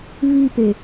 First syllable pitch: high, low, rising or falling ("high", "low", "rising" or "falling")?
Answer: falling